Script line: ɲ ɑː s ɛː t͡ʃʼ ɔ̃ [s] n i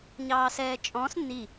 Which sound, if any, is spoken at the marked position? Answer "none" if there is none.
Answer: s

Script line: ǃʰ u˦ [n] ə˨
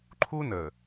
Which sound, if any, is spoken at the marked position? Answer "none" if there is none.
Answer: n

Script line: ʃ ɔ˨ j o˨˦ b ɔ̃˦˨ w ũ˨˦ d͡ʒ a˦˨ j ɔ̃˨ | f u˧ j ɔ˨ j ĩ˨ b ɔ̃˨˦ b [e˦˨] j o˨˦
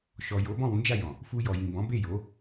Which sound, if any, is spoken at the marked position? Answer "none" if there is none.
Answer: e˦˨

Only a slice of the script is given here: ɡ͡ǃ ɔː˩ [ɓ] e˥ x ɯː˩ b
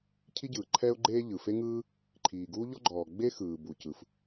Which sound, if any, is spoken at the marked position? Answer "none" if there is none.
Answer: ɡ͡b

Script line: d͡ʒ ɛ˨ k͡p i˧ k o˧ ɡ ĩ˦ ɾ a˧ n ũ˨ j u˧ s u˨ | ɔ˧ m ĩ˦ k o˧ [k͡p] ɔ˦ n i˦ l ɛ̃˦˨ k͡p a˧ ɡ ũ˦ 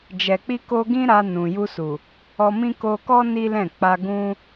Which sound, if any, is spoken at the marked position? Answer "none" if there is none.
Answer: k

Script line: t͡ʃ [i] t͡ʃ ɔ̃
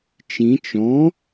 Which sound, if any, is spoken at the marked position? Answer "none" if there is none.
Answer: ĩ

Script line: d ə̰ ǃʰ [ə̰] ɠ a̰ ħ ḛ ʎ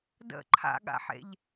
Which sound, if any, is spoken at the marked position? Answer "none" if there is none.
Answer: a̰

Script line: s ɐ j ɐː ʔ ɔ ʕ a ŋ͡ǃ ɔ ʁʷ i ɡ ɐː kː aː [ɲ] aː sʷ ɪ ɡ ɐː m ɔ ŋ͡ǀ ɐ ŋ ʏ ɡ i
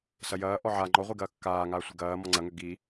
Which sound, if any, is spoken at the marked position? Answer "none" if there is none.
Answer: ŋ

